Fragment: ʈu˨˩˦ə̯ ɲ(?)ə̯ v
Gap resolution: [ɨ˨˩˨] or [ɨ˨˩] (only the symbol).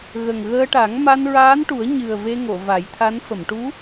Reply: ɨ˨˩